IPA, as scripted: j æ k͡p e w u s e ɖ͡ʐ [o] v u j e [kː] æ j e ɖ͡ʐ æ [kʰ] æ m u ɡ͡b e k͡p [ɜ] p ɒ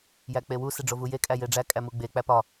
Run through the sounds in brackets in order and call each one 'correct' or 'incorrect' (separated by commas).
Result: correct, incorrect, incorrect, incorrect